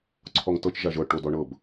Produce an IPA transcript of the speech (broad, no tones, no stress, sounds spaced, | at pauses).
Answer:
ǀʰ ɔ ŋ t ɤ t͡ʃ ʒ a ʒ ɤ ʈ o d ɔ ɳ ɤ b